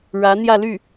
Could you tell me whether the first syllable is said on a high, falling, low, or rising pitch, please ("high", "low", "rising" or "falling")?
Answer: rising